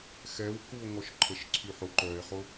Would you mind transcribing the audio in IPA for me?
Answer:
xɛwkuo̯ ŋɔʃǃʰəʃǀʰyħʊ ǃœe̯χʊ

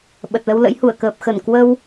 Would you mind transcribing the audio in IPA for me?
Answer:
ɓə˨˩t̚lə˧wlə̰˧˥jhu˧˩ə̯ kəː˨˩p̚xə˧˩n kwə˧w

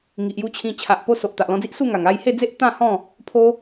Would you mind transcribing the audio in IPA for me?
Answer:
ŋi˨ʔju˧ t͡ɕʰĩ˧ t͡ɕʰa˨ʔpo˧ so˨ʔt̪a˨ʔlɔ̃˧d͡zi˦ʔ su˥˧ŋa˨˩ŋ a˥˧j he˥˧d͡ze˦ʔ t̪ã˥˧hɔ̃˥˧ | pʰo˦

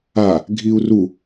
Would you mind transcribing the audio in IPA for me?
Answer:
a | ɡʱiu̯ru

